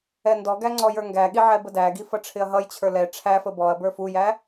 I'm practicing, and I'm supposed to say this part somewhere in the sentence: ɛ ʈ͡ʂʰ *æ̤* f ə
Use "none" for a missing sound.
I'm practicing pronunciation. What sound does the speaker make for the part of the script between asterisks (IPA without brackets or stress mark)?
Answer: æ